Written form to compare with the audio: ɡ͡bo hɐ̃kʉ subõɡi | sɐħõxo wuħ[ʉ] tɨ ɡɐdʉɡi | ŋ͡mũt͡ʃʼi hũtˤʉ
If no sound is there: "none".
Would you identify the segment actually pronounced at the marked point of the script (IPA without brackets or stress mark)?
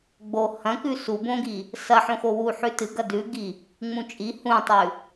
ʉ